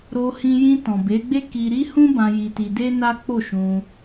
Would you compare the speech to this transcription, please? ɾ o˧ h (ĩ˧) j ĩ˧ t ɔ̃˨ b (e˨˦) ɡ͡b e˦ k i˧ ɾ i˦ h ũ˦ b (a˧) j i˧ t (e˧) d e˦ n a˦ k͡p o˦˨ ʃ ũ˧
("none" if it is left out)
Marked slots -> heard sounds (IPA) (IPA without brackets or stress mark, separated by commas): ĩ˧, e˨˦, ã˧, i˧